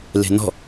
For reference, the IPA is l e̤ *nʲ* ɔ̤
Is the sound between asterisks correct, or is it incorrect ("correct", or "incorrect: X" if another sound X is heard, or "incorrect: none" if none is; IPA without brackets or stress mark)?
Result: incorrect: n